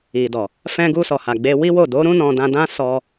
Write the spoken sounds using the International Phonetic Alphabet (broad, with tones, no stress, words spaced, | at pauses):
i˨dɔ˨ | fɛ̃˧ɡu˧sɔ˨ha˨ ɡ͡be˧ wi˦wo˦˨ do˨˦ɾũ˦ nɔ̃˧dã˧dã˦ sɔ˧